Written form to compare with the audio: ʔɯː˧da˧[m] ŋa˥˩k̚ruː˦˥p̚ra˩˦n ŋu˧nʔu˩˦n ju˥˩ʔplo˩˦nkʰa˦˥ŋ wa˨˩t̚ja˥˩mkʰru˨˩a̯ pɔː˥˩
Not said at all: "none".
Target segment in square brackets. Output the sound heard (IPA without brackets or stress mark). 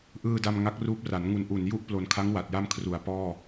m